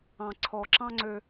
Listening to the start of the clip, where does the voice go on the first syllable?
low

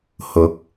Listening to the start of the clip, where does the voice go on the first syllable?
rising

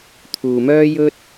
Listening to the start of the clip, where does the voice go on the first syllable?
low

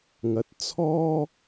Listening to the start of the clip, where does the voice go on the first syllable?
rising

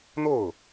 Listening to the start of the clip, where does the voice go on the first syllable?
falling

